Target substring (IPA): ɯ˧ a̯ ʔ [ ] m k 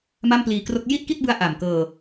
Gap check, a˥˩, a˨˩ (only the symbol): a˨˩